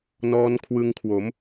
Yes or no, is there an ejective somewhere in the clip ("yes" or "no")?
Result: no